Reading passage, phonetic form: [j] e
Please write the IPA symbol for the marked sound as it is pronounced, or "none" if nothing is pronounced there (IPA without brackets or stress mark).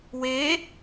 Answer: w